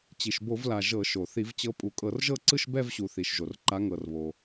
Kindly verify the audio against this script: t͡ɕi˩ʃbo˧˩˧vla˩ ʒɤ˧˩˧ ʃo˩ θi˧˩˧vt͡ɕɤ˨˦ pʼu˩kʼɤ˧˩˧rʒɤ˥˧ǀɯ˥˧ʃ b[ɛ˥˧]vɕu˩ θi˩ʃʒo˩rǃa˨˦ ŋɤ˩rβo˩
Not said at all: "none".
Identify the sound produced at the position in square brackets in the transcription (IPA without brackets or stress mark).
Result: ɛ˥˧